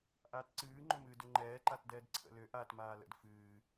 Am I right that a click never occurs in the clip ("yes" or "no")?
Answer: no